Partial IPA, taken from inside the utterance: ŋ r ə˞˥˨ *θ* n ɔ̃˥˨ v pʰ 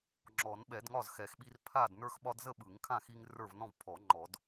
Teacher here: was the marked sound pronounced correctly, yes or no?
no